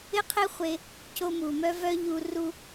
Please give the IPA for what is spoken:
ɪ˦ qʰ e˦ χʷ e˧ | c o˧ m u˨ m œ˦ v œ˦ ʎ u˧ r u˦

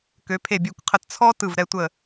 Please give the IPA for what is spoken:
k ø˩˧ pʰ e˧˩ bʲ e˧˩ kʷ qʰ ə˧˩ t t͡sʰ ɔ˥ t ɯ˧˩ v ɾ ɛ˧ tʷ ə˧˩

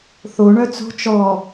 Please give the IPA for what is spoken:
θ o ɳ œ t͡s o̤ t͡ʃ ɔ

